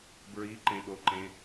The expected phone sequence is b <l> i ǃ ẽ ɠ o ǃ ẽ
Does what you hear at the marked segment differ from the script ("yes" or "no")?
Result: yes